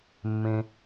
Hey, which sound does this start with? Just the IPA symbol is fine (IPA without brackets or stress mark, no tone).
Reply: mː